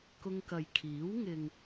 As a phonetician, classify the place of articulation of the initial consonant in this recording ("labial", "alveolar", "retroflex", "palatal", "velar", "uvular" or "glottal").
velar